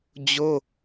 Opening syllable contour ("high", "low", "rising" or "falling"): high